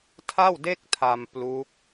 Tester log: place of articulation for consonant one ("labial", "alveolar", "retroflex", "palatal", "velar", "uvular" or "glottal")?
alveolar